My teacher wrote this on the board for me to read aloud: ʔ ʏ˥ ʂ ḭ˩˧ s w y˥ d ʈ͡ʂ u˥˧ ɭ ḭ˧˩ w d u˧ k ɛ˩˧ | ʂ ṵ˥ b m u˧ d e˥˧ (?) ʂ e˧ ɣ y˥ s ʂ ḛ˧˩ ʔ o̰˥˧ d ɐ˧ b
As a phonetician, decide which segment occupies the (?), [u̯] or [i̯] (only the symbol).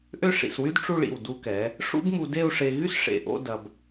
u̯